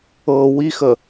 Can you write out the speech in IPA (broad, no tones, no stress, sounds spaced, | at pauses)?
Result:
ɤ w i x ə